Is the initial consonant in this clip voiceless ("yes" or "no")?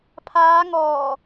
yes